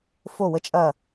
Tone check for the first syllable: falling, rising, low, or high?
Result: falling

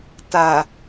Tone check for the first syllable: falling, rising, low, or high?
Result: low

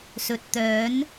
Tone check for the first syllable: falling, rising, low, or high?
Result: low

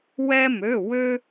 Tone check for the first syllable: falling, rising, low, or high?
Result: high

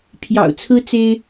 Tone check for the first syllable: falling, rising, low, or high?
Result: low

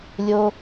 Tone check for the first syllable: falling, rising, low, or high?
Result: high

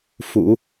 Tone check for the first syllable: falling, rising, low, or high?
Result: low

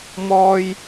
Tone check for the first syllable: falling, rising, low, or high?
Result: high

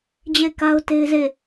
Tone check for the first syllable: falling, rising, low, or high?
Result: falling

